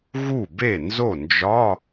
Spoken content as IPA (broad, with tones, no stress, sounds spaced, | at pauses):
ɣ u˥˩ b e˥˩ n z o˥˩ n d͡ʒ ɒ˧˥˧